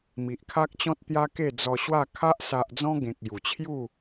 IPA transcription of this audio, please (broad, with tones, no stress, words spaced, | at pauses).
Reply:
mi˨ʔkʰa˦k̚t͡ɕɔ̃˦t̚ t̪ja˦ke˥˧ d͡zɔ˧ɕwa˥˧ kʰa˦ʔ sa˨ʔd͡zɔ̃˧ ɡẽ˨k̚ ju˨˩t͡ɕʰju˥˧